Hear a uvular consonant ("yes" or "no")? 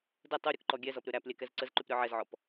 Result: no